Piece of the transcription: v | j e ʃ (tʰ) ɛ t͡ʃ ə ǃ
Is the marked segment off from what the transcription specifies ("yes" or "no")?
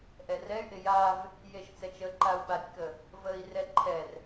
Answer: yes